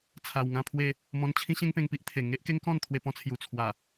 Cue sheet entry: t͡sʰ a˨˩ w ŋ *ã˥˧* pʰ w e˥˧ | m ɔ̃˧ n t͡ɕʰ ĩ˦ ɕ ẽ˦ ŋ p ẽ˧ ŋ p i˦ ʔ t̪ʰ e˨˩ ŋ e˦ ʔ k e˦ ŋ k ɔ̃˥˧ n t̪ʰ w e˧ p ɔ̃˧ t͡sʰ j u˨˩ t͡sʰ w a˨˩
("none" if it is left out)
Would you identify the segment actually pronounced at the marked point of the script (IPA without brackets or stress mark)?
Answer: ã˥˧